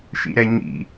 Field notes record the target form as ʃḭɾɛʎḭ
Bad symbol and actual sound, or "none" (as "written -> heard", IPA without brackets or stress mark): ʎ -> ɲ